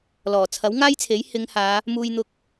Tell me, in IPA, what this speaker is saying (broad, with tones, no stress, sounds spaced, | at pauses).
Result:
l ɔː˨˩ t͡sʰ ɐ˨˥ w ŋ aː˥ j t͡sʰ e˨˥ j h ɪ˨˧ ŋ h aː˨˧ | m uː˧ j n̪ ʊ˧ k̚